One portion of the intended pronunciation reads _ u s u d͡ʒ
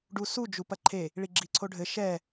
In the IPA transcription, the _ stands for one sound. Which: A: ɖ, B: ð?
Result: A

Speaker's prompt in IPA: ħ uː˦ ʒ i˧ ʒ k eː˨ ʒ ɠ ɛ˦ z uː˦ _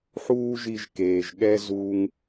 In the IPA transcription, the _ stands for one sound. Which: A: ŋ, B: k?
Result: A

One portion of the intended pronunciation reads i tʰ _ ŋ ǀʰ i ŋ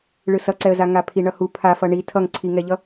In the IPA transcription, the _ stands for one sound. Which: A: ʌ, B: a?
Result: A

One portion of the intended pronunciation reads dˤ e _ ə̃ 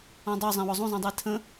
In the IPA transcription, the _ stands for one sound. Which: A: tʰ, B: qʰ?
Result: A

